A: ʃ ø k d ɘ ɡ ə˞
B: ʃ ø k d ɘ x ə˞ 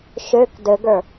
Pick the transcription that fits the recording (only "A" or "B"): A